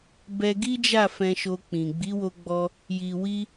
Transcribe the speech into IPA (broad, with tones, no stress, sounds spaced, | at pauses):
b ɛ˧ ɡ i˦ d͡ʒ a˦˨ f ɛ̃˧ ʃ o˧ k͡p ĩ˨ ɡ͡b i˨˦ w o˧ ɡ͡b ɔ˧ | j i˨ w i˧